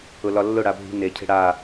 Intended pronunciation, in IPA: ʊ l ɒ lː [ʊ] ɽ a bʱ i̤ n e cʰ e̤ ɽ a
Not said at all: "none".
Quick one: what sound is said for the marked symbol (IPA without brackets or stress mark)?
ʊ